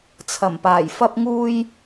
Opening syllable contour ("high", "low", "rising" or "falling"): low